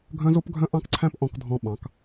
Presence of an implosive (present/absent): present